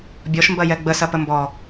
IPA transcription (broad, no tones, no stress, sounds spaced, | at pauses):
bʲ ɔ ʃ m b ɐ j ɛ ɡ͡b ə s ɐ p ə m b ɔ